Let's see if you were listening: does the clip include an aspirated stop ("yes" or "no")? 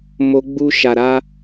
no